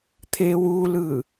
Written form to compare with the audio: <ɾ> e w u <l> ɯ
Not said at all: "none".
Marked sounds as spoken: t̪ʰ, l

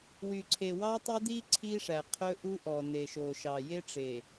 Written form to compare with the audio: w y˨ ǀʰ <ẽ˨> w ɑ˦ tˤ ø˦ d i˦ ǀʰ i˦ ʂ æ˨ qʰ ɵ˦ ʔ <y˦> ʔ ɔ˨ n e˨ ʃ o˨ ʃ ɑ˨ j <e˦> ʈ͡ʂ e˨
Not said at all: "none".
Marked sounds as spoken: e˨, u˦, e˦

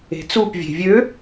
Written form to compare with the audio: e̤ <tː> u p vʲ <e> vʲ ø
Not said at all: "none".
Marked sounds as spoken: t͡s, e̤

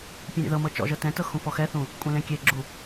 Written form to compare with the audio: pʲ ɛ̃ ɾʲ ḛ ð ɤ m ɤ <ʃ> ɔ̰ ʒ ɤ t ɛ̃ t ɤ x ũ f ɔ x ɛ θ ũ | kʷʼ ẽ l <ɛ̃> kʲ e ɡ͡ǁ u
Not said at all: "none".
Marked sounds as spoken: t͡ʃ, ẽ

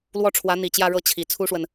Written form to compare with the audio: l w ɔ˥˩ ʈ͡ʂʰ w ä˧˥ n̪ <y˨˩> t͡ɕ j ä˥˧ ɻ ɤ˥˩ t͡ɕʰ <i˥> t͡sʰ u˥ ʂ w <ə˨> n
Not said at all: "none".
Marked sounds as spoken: i˨˩, i˨˩, ə˨

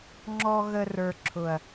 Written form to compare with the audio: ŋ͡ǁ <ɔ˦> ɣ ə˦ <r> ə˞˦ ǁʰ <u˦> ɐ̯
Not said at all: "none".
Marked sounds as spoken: ɔ˦, r, ʊ˦

